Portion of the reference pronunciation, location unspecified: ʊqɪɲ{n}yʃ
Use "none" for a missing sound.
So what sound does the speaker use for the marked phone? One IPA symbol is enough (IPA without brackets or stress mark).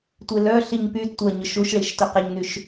n